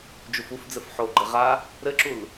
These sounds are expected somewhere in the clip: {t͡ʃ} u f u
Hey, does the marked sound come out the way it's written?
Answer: no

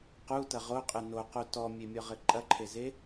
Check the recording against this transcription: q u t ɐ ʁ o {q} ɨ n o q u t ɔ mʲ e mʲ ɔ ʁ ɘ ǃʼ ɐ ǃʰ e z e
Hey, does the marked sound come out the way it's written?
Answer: no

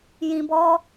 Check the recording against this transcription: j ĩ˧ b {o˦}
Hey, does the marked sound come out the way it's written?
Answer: no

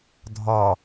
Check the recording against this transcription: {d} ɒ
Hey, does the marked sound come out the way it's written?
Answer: no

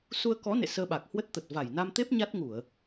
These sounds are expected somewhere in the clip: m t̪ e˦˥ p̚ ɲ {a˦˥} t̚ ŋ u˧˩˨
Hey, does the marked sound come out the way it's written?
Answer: yes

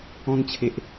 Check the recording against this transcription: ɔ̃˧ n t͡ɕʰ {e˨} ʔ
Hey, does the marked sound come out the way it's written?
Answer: yes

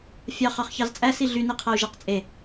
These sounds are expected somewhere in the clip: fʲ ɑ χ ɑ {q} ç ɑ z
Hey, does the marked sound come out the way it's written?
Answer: no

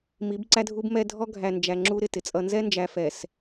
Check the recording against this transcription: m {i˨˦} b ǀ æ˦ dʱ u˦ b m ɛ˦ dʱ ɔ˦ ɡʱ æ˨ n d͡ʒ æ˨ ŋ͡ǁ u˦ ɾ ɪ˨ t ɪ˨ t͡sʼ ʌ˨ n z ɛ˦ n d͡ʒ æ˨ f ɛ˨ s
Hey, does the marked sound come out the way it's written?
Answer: yes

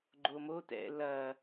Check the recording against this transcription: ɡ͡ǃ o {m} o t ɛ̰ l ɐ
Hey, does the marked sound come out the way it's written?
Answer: yes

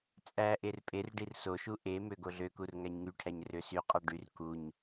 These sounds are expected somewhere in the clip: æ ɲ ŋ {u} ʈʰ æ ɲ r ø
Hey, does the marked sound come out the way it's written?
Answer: no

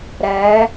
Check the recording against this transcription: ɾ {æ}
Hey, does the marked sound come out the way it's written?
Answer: yes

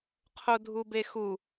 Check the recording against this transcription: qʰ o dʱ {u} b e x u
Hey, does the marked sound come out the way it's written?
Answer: yes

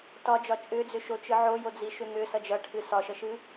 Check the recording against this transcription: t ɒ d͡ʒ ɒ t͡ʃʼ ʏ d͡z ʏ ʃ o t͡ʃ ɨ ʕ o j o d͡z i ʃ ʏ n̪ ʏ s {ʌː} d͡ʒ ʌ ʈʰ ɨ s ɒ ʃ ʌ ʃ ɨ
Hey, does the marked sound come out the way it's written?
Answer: no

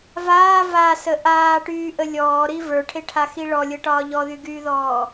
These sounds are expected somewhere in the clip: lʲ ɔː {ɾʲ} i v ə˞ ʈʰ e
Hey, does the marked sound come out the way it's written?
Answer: no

